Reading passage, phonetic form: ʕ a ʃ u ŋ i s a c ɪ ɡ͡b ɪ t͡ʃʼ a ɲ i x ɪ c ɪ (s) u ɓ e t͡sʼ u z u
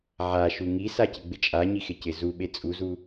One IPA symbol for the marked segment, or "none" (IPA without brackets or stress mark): z